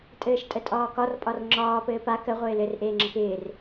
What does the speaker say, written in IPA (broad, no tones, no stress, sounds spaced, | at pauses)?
tʼ ɘː ʃ tʼ ə tʼ ɒː k ɒ r pʼ ɒ r ŋ͡ǁ ɒː p ɘː p a k ə ʁʷ ɪː l ɘ r ʔ eː ŋ͡ǁ ə k ɪː r